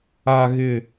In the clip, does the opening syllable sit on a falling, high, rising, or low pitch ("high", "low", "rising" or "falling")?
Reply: low